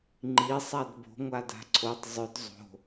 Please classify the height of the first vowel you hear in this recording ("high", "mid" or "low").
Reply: high